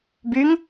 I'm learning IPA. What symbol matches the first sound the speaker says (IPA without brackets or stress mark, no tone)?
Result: b